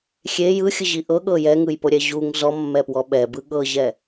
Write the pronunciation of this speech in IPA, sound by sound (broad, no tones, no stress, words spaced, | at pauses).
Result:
xʲe jɯxʲɯʑi ʔɤɠɤ jɛŋɯjpoɾʲɛ ʑuŋ zɔmːɛpwɔ ɓɛbɯ ɠɤʑɛ